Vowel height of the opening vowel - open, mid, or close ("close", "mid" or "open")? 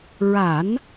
open